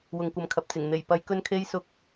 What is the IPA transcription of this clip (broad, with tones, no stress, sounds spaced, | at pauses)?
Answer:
w ʊ˨ ŋ kʷ ɐ˨˧ m kʰ ɐ˨ p̚ t͡s ɪ˨˩ ŋ n̪ e˨˩ j p ɐ˨˧ j k ɵ˧ n kʰ e˧ j s ʊ˨˥ k̚